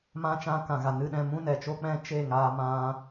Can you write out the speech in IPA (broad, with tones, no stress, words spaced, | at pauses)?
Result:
mã˧ t͡ʃã˧kã˨ɣa˨ nɨ˧ɗɛ̃˧ mũ˦nɛ˨ t͡ʃo˦k͡pɛ̃˦ t͡ʃe˦˨ŋaː˧ mã˦